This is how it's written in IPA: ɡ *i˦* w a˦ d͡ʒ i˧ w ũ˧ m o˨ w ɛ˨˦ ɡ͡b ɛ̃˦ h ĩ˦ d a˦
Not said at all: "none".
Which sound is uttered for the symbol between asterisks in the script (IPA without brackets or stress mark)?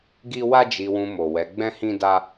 i˦